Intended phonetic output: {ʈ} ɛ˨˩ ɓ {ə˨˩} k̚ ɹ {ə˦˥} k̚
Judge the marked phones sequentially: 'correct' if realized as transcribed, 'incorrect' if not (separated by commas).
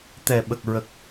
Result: incorrect, correct, incorrect